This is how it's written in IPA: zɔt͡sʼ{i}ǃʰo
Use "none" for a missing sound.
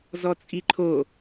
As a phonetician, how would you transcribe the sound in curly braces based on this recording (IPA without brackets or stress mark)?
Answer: i